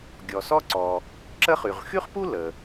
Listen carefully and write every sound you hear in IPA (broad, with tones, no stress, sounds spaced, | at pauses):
ɡʲ ɔ˩ s ɔ˥ ǀ ɔ˩ | ǁ ə˥ χ y˩ ʁ x y˥ χ p u˥ l ə˩